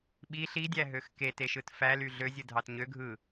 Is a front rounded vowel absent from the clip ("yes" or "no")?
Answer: no